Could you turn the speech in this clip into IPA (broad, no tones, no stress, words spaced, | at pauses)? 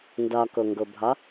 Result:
ndɒkoŋɡobʱɒ